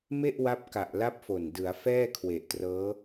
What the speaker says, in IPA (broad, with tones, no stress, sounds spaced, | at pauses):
m e˥˩ ʔ w a˦˥ p̚ k a˨˩ ʔ l a˦˥ p̚ f o˨˩ n d ɯ˩˦ a̯ f ɛː˥˩ kʰ w e˨˩ ʔ t r ɤː˦˥